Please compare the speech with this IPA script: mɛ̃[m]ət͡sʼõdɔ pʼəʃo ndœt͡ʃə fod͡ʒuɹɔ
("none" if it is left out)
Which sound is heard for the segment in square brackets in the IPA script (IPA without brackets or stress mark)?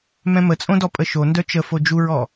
m